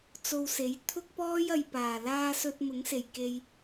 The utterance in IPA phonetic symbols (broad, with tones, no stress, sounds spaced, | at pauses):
t͡s o˧ w s e˨˥ j t̪ʰ ʊ˥ k̚ p ɔː˥ j ɐ˨ j p aː˨˩ l aː˧ s ɵ˧ t̚ m ʊ˨˥ ŋ s e˨˩ j k e˧ j